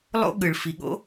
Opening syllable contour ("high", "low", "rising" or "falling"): high